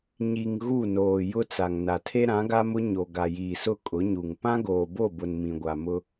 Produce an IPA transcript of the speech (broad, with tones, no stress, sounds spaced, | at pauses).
ɲ i˨ ŋ ɣ u˦˨ n oː˨ j ʊ˦ t͡s a˨ ŋ n a˨ tʰ e˦ ɾ ã˨˦ ɡ a˦ m ʊ˦ ɲ o˨ ɡ a˨ j iː˨ s ʊ˦˨ kʼ ʊ˨˦ ɲ u˨ ŋ p ã˦ ɡ oː˨ b o˦˨ b ʊ˨ n m ĩ˨ ɡʷ a˨ m ʊ˦